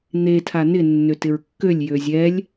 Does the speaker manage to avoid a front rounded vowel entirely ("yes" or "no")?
no